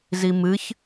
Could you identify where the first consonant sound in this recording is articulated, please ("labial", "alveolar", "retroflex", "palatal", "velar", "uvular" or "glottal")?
alveolar